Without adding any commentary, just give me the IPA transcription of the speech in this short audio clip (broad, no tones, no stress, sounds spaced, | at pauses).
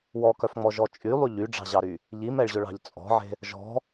w ɔ k œ f ŋ͡m ɔ ʒ ɔ t͡ʃʼ y lˠ y ʎ y ɖ͡ʐ ɑ̤ ʑ ɑ ɾ y | ʎ i m ɛ ɭ ʑ ɵ ɭ ɑ̤ ʎ t͡sʼ ɔ̤ ʕ e̤ | ʒ ɔ̤